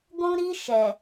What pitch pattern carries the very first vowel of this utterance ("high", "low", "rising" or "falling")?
high